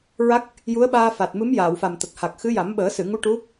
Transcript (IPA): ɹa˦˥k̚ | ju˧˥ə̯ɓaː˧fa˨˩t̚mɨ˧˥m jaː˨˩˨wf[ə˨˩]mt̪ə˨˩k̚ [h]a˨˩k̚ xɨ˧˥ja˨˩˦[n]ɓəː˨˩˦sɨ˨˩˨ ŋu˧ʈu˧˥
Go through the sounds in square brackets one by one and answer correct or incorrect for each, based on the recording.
incorrect, correct, incorrect

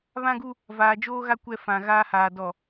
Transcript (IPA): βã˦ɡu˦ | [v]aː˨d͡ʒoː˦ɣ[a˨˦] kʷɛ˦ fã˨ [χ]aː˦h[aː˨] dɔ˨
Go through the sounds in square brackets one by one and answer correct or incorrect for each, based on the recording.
correct, incorrect, incorrect, correct

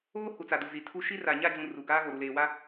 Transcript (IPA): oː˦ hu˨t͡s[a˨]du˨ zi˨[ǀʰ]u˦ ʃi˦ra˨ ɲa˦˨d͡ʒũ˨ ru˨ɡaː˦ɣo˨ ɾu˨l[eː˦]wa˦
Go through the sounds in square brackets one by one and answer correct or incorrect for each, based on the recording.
correct, incorrect, incorrect

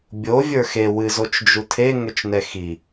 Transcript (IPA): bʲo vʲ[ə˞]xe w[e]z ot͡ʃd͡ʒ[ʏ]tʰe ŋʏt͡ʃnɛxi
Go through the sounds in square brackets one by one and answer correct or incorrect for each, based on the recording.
correct, incorrect, incorrect

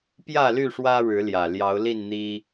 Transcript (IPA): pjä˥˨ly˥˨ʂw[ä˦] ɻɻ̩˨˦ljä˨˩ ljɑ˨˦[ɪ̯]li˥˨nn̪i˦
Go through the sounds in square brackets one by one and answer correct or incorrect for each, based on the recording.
correct, incorrect

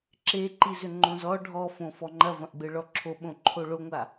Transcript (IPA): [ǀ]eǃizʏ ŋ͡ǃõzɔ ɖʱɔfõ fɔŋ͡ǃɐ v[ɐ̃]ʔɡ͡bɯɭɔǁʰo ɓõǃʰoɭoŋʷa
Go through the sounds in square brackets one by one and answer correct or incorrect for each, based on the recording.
incorrect, correct

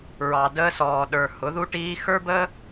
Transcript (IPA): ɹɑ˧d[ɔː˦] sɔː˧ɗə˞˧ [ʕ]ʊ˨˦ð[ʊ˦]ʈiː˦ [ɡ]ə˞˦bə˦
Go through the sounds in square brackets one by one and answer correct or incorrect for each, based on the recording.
incorrect, incorrect, incorrect, incorrect

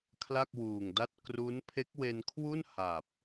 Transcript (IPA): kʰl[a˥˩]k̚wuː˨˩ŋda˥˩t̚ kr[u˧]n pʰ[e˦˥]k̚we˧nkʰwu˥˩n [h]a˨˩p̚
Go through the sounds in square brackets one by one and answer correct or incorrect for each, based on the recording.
correct, incorrect, correct, correct

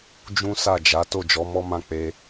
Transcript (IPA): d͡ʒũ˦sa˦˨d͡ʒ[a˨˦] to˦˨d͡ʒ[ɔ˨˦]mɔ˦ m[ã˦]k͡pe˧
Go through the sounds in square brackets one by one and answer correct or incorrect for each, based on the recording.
correct, correct, incorrect

